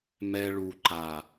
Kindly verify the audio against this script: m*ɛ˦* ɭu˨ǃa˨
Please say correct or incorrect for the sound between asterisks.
correct